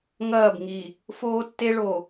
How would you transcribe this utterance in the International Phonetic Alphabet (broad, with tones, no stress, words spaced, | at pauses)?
ŋɐː˦˨bŋi˨ | foː˦tːe˦ɭo˨